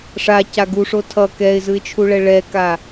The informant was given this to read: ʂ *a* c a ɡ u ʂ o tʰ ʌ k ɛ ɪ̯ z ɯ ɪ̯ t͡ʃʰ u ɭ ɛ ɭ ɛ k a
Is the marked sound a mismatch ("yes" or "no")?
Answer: no